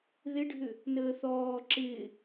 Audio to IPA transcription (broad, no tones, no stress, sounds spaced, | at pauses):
ð ɪ ɖʱ ʏ | n əː θ ɔː ǁ ɪː